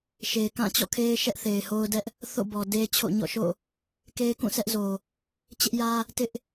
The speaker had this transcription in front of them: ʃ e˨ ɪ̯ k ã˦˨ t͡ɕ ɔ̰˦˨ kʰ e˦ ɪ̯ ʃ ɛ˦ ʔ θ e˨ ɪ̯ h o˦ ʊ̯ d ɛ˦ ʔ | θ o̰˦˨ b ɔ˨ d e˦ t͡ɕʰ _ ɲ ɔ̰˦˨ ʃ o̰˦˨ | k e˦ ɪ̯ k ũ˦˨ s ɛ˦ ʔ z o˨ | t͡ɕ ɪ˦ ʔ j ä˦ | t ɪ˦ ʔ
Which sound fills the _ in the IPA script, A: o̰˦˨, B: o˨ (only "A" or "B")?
A